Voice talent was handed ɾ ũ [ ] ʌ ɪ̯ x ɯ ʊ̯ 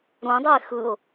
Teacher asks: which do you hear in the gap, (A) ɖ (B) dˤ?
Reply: B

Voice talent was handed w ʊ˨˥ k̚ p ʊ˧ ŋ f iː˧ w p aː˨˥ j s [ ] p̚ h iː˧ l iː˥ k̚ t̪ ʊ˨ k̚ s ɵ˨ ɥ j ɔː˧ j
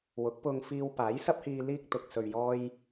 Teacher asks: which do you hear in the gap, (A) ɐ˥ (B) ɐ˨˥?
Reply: A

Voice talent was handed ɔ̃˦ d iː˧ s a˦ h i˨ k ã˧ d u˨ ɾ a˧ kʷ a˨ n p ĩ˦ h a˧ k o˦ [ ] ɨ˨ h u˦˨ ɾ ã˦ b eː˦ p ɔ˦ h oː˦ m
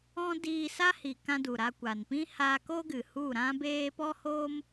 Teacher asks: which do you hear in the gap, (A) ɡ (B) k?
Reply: A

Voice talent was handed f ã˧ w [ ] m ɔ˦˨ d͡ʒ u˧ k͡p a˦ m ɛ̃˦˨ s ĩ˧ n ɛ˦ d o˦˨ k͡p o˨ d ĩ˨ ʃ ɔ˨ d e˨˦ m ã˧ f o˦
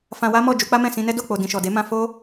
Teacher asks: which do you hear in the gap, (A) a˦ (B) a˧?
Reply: A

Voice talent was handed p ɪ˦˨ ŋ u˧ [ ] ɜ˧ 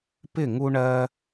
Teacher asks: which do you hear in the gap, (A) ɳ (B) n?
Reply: A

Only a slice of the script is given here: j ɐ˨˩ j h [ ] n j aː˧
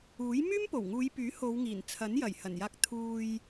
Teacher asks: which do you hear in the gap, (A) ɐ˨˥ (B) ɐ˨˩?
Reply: B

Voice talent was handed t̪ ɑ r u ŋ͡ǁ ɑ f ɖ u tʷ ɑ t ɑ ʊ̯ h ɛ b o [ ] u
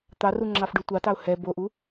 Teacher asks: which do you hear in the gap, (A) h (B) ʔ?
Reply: B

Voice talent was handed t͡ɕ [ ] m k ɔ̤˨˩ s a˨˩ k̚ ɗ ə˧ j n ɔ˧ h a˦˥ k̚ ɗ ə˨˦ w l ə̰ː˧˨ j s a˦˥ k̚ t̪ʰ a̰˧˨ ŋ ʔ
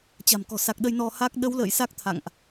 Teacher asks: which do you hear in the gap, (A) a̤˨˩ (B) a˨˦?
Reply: A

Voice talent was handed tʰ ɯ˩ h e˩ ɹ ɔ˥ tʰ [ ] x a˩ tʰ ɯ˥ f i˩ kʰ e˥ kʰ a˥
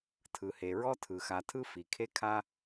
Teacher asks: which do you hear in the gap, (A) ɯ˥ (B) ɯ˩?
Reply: B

